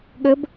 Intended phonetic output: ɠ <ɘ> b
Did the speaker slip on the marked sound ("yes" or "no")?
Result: no